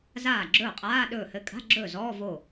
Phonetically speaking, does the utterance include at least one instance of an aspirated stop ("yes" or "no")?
no